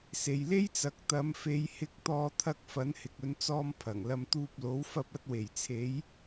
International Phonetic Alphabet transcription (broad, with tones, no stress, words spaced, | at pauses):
se˨jle˥jt͡sɐ˨˥k̚ t̪ɐ˨˧mfe˨˧j hɪ˧k̚t̪ɔː˧t̪ʰɐ˧k̚ fɐ˨˥nhɪ˨k̚ɵ˨˧nt͡sɔː˧m pʰɐ˨˩ŋlɐ˧m t̪uː˧p̚lo˨˥w fɐ˧p̚ɐ˧t̚we˨˩j t͡sʰe˨˧j